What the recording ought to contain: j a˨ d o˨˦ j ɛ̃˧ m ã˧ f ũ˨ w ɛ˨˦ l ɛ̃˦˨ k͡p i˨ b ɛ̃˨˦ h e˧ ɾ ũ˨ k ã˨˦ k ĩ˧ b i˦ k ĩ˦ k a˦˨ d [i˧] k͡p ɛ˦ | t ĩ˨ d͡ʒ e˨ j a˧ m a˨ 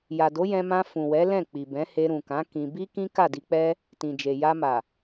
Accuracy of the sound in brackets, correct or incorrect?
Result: correct